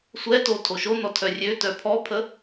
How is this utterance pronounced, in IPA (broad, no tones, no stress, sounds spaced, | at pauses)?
sʷ ɛ t o tʰ o ʃ o n ɔ tʰ œ rʲ ø t œ pʰ ɔ pʰ ə